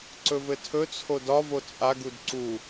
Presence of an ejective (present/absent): present